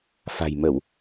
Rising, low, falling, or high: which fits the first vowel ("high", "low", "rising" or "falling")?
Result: low